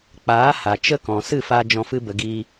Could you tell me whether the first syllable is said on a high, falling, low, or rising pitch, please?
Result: rising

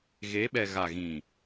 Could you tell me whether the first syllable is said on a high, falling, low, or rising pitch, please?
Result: rising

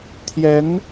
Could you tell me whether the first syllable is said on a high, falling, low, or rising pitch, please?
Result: rising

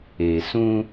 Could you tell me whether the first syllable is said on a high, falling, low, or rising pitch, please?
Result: low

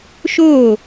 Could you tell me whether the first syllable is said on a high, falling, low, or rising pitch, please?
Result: falling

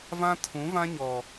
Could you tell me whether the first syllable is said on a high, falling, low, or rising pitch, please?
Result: high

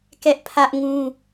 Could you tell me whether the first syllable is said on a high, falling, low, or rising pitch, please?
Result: high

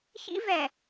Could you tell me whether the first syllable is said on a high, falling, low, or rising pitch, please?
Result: high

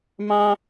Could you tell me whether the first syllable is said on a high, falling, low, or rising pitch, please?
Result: high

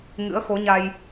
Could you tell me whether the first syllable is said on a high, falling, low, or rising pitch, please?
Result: rising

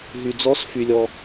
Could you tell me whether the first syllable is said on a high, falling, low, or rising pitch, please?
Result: low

